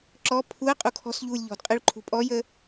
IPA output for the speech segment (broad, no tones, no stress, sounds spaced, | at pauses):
ǁ ɔ pʰ u ə̯ qʼ u kʰ ɔ̤ s ʎ uː lʲ ʎ ɔ̤ d qʼ ɨ ɭ ǃʰ ṳ pʼ ɔ j ə